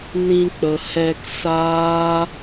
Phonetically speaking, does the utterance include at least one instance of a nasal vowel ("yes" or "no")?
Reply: yes